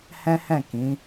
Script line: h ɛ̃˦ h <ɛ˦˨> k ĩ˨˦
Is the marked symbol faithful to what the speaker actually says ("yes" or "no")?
no